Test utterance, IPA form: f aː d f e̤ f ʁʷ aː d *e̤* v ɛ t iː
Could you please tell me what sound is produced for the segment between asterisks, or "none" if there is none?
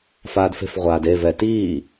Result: e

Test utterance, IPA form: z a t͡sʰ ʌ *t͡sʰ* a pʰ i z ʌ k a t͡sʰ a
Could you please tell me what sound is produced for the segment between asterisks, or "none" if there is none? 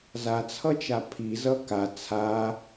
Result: t͡ʃ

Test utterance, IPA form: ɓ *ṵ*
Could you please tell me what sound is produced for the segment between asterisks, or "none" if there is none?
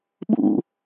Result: ṵ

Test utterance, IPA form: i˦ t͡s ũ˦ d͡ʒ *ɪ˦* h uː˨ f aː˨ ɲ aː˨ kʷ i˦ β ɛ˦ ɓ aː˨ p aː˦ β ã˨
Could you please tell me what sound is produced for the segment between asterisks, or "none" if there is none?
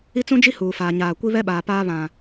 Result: i˦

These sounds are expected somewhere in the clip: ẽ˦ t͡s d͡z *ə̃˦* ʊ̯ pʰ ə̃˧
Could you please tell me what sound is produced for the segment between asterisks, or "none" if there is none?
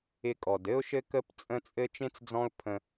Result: ɔ̃˦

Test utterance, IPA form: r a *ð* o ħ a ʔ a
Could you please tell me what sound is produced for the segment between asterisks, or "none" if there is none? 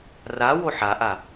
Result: w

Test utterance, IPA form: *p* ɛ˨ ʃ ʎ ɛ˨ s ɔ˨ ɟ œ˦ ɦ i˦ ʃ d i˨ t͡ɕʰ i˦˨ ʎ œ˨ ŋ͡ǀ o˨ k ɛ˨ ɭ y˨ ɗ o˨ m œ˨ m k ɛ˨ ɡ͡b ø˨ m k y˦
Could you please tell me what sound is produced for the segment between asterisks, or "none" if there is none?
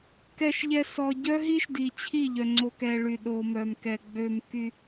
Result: k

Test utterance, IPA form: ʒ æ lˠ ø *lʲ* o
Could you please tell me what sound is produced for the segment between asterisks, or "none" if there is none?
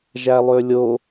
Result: lʲ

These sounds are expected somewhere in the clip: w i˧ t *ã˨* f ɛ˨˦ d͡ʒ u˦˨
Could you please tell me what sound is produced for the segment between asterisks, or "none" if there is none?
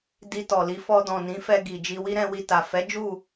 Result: a˨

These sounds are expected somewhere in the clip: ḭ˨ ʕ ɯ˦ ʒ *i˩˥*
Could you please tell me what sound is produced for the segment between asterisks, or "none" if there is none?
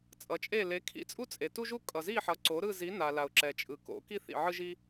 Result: i˦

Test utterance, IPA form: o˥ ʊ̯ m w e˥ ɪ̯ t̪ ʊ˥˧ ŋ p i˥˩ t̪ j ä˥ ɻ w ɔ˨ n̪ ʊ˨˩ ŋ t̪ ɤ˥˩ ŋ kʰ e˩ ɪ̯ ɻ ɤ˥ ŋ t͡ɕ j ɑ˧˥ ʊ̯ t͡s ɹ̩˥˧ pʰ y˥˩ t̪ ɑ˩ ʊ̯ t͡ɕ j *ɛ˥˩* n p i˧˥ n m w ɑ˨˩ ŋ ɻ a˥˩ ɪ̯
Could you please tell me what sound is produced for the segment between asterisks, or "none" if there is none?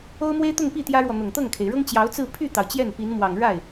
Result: ɛ˥˩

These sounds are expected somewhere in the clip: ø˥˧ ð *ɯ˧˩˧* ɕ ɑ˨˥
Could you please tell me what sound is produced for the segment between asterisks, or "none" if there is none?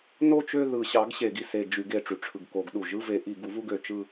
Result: ɯ˧˩˧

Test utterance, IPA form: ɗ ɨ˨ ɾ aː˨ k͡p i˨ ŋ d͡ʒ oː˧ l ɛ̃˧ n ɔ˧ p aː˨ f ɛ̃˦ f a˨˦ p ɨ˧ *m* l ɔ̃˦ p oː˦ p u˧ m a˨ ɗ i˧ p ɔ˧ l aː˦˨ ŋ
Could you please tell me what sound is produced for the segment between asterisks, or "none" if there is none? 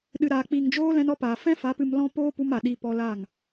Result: m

